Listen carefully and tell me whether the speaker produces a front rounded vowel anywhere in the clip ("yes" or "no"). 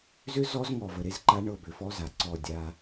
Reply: yes